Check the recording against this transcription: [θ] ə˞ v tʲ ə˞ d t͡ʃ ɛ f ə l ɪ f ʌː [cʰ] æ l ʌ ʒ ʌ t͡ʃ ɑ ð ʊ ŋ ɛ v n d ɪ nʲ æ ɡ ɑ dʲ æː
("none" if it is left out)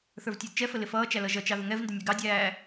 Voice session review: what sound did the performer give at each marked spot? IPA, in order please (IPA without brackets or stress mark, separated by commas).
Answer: θ, t͡ʃ